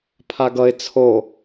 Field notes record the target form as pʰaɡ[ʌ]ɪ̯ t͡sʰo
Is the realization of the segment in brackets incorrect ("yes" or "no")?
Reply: no